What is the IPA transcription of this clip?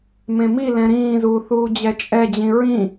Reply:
m ẽ m i l ɛ̃ ɾ ĩː z uː θ uː d͡ʑ ɛ t͡ʃʼ ɛ d͡ʑ ĩ ɹ ĩ

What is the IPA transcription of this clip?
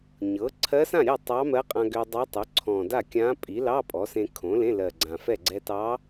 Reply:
ɲ ɤ˩˥ ǀʰ ɜ˧˥ s ã˥˩ ɾʲ ɜ˥˩ tˤ ɑ˧˥ m ɜ˧˥ qʼ ã˧ ɡ ʏ˧ dˤ ɑ˧˥ tˤ ʏ˩˥ ǀʰ ɔ̃˨˩ d a˥˩ kʲ ã˧˥ pʼ i˩˥ l ɑ˧˥˧ pʼ ɔ˩˥ s ẽ˧ kʰ õ˩˥ l ẽ˧˥˧ l ɜ˨˩ ɡ͡ǀ ã˨˩ f ɛ˥˩ ɡ͡ǀ ɛ˧ t ɑ˧˥

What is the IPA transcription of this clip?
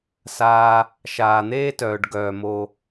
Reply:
s aː˧ | ʃ aː˨ n̪ eː˦ t œː˨ ɖ ɡ œː˨ m o˧

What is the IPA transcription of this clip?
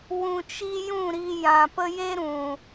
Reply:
w ũ˨ t͡ʃ i˧ j ũ˦˨ ɾ i˧ j ã˨ p ə˦ j e˦ ɾ ũ˨

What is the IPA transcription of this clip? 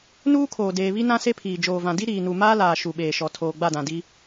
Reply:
n uː˦ kʰ oː˨ d eː˨ β i˦ n ã˦ s e˦ pʰ iː˨ d͡ʒ oː˨ v ã˨ d i˦ ɾ iː˨ n u˨ m aː˦ l aː˨ ʃ u˨ ɓ eː˨ ʃ ɔ˨ tʰ oː˨ ɡ͡b a˦˨ d ã˨ d i˦

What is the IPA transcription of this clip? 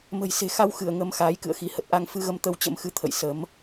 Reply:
m ə̤˨˩ j s e̤˨˩ x a˧ w x ɨ˧˩ ə̯ ŋ ə˨˦ m x aː˨˦ j k ɨ̰˧˨ ə̯ x i˨˦ h ə˨˩ t̚ ʔ a˧ ŋ f ɨ˧ ɣ ə˧ m t̪ ə˧ w t͡ɕ ə̰˧˥ m x ɨ˧ t̪ʰ ə̰˧˨ j s ə˨˦ m

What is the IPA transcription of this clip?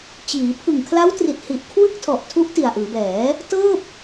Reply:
t͡ɕ iː˩˦ pʰ ɯ˨˩ ŋ kʰ l a˦˥ w t r i˨˩ t̚ h i˨˩ ʔ kʰ w ɯ˥˩ k̚ tʰ ɔ˨˩ ʔ tʰ u˦˥ ʔ t i˨˩ a̯ ʔ ɯː˩˦ b ɛː˩˦ | t ɤː˥˩ p̚

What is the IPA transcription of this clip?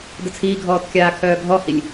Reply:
d ə t͡sʰ iː ɡʱ ɔː t kʲ aː kʰ œː ɡʱ ɔ h i lʲ

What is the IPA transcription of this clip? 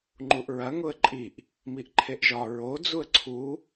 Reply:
ŋ͡ǃ u ʔ ɹ ɐ ŋ ʊ ə̯ ǃʼ i ʔ | m i ʔ ǃʰ e ʔ ʒ ɒ ɹ o d͡z u ə̯ ǀʰ u

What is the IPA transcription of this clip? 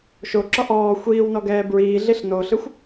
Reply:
ʃ o ǁ ɔ ʔ ɔː xʷ iː w n ɔ ɡ ɛː b ɹ iː ɮ i ɬ n o ɬ ɯ xʷ

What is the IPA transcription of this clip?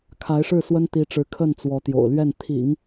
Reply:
kʰ a˧˥ ɪ̯ ʂ ɻ̩˥˩ s w ə˥ n t̪ i˧˥ ʈ͡ʂ ɻ̩˧˥ kʰ ə˥˩ n t͡s w ɔ˧˥ t̪ j o̰˨˩ ʊ̯ l ɥ ɛ˥˩ n t̪ʰ ḭ˨˩˦ ŋ

